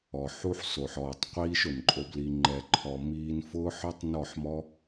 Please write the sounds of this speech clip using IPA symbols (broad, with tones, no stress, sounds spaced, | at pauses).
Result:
ɔ˨ ħ u˦ ħ s o˨ ħ ɔː˨ tˤ qʷ iː˦ ʃ ʊ˨ n ǃʼ o˧ b l i˧ ŋ͡ǃ ɛ˨ ǃʰ ɔ˨ m iː˧ n f ʊː˦ ħ ɔ˦ tˤ n ɔ˦˨ ħ m ɔ˦